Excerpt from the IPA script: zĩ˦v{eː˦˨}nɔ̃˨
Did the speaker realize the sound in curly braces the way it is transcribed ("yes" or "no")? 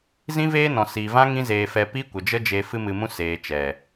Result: no